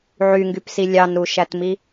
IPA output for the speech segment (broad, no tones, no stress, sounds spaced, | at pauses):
ʕ y ŋ ɡ y p s i lʲ ɑ n ɾ u ʃ æ t m i